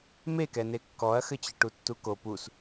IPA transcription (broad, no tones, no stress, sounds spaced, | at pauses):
m e k ɛ n e kː ɔ ɐ̯ x ɘ t͡ɕ ɘ ʈ u tː u k o p u s